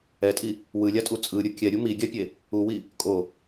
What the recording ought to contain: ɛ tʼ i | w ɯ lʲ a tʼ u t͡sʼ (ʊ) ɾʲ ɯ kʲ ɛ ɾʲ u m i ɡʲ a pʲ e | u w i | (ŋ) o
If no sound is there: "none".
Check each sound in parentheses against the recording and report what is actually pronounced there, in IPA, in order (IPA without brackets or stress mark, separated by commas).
ɯ, kʼ